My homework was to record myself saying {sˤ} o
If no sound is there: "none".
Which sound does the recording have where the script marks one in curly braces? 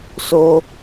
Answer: s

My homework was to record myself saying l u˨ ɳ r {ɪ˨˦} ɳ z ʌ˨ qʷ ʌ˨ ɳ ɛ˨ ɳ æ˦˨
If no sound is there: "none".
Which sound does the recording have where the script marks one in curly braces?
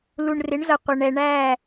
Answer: ɪ˨˦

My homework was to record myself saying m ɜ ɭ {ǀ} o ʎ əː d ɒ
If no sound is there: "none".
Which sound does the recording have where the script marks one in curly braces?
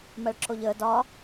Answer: ǁ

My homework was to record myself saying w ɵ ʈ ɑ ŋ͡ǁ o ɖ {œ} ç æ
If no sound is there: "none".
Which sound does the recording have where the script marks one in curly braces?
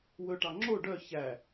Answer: œ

